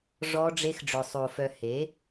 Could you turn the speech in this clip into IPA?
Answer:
ʐ ɔ˦ ɖ͡ʐ e˦ x ɖ͡ʐ œ˧ sˤ o˧ f œ˧ h e˨˦

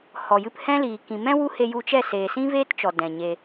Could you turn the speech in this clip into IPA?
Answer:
h ɔ˨ j ɨ˧ p h ɛ̃˦ l iː˨ k ĩ˨ m ɛ̃˦ w u˦ h e˧ j u˧ t͡ʃ ɛ˦˨ s eː˨ s ĩ˦ v eː˦ t t͡ʃ ɔ˨ d ɛ̃˨ ɲ e˧

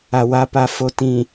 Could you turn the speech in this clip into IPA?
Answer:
a˨ w a˦ p a˨ f o˦ t ĩ˨

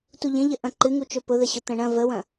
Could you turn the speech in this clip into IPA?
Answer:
t u ʎ ə̃ ʎ ə ʔ ɐ̃ ǃ ɨ ŋ u t͡ʃ ɵ p ʊ ð ə ɕ ʊ t̪ ɐ̃ ɳ ɐ̃ v ə w ɐ̃

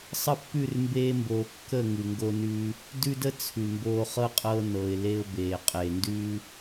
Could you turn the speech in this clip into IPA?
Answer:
sˤ ə˦˨ pː ʉ˦˨ r m b eː˧ m b oː˨ kː ə˦˨ ŋ ʉ˨ ŋ ɡ o˧ n ʉ˧ | d ʉ˦ d ə˦ t͡sʰ ʉ˨ m b oː˧ χ ɤ˦ qʼ ɤ˧ n ɤ˨ ɪ̯ l e˧ ʊ̯ b eː˨ qʼ e˨ n d ʉ˦

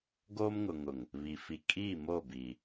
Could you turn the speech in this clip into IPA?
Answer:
ɡ o˦ m ŋ ʊ˨ ŋ ʊ˨ ŋ | β i˨ f i˨ kʼ iː˦˨ m o˦˨ b iː˨

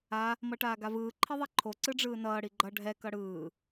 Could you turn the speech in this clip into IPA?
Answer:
a | m ʌ ʈ aː ɡ a v ɯː ǃʰ i ðˤ ɛ ǃʰ o ǀ ɯ ɖ͡ʐ ɯː n ʌː ɽ i ɡ͡ǃ ʌ ɖʱ ɛ k ʌ ɽ ɯː

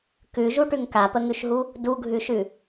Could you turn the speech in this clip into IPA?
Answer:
k ʉ ʒ u ʈ ʉ ŋ k a p ə ŋ ʉ ʃ ɦ u | d u ɡʱ ʉ ʃ ʉ

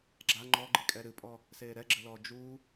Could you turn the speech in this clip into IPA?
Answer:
ɡ͡ǁ a ŋ͡ǃ ɔ ɡ͡ǃ i kʼ ɛ ɾ ɨ pʼ ɔ | s eː ɾ ɛ ɡ͡ǁ ɘ l ɔː d͡ʒ u

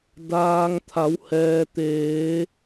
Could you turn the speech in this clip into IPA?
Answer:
d aː˩ ŋ t̪ʰ a˩˧ w h ɛː˩ t̪ eː˩˧

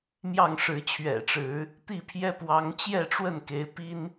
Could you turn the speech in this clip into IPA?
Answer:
m j ɑ˥˨ ŋ ʂ ɻ̩˨˦ t͡ɕʰ ɥ ɛ̰˨˩ ʈ͡ʂ ɻ̩˨˦ | t̪ i˥˨ pʰ j ɛ˦ p w ɑ˨˦ ŋ t͡ɕ j ɛ˥˨ ʈ͡ʂ w ə˥˨ n k e˨˦ ɪ̯ p i˦ n

